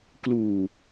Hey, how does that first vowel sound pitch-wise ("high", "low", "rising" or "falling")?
low